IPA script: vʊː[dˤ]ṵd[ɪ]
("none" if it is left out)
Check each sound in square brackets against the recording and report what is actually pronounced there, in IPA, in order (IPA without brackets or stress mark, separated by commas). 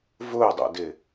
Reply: dˤ, ɪ